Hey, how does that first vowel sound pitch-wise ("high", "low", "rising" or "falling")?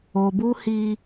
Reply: low